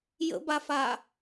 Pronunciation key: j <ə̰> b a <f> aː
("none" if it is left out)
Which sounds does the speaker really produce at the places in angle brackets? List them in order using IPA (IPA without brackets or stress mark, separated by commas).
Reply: ə̰, f